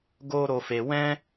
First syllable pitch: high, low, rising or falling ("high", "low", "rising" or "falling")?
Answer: high